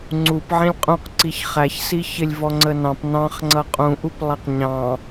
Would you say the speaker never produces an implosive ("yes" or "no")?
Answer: yes